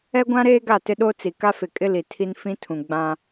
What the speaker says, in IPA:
ɛ˦ ɡʷ ã˦ ɾ eː˦ ɡ a˦˨ t ɪ˦ ɗ o˦ t͡s i˨ k a˦ f ɪ˨ kʼ ɪ˦ l i˨ tʰ i˦ n f ĩ˦ tʰ ũ˨ ɡ͡b ã˦

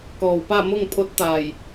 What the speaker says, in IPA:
k ɔː˧˩ w p a˥˨ m o˥˨ ŋ pʰ o˧˥ t̚ t̪ aː˧˩ j

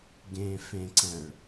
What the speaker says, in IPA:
ɡ ẽ f ẽ ǀ ɛ̃ ɭ

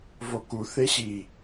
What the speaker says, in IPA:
v o k u θ e ɕ i

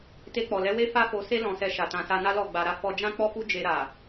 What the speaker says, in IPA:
t e˧ k͡p ɔ˨ l ɛ˨˦ w e˦ f a˦ f o˧ s e˦ l ɔ̃˧ s ɛ˧ ʃ a˨ t ã˨ s a˧ n a˦ l ɔ˦˨ ɡ͡b a˨ ɾ a˨˦ f ɔ˧ d͡ʒ ã˦ k͡p ɔ˦ f u˦ d͡ʒ e˧ ɾ a˨

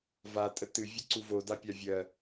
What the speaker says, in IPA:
v a tʼ ə t ɨ vʲ ɨ ǀ u v o d a pʲ a vʲ ɜ

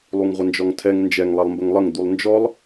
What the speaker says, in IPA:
lˠ u ŋ ʁʷ ə n d͡ʒ ɔ ŋ tʰ ɛ ŋ n d͡ʒ ɛ ŋ lˠ ɛ lˠ m b ə ŋ lˠ ə ŋ d̪ u lˠ n d͡ʒ ɔ lˠ

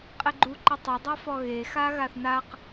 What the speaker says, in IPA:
qʼ e ɡ͡ǃ u ǃ ɘ tˤ ɘ dˤ a f ɔ ɣ e x a ɣ a θ n a q

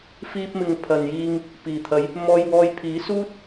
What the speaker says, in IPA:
f iː˧ p̚ m ɪ˨ ŋ pʰ ɐ˨ n j iː˧ ŋ | p iː˨˩ t̪ʰ ɐ˨˧ j | m ɔː˧ j w ɔː˧ j pʰ iː˨˥ s uː˥ t̚

